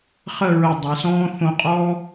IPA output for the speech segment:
χə˥˧ɹə˧˩dˤe˩˧sɔ̃ː˥ θõ˧qʼɔ˥

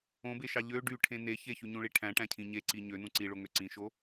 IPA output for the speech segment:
õbeʃɑ ʎø ɖyʈʰẽ ne çeçyɲũɭi ʈʰæ̃ʈæ̃cʰĩ ɲeǀi ɲønũ ǀiɭoŋø ǀĩʃo

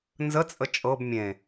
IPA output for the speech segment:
nzət͡sʼə t͡ʃʼɤb mʲẽ

